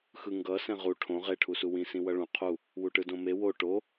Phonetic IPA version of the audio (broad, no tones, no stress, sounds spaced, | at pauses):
x ɯ ŋ ɡ ʌ s ɛ̃ ʁ u ʈʰ õ ʁ e ʈʰ u s u w ĩ s ĩ w ʌ ɭ ũ qʰ u | w u ʈ ɯ d õ m e w o ʈ o